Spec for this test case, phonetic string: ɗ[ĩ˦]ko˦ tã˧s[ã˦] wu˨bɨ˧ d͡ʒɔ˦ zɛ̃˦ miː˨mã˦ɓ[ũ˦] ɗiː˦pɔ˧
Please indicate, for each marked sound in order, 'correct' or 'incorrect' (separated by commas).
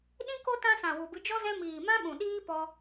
correct, incorrect, incorrect